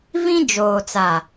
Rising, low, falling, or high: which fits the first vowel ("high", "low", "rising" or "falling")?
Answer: high